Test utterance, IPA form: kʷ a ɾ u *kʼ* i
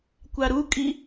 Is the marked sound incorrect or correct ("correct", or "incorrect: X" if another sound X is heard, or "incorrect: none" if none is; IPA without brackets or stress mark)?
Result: correct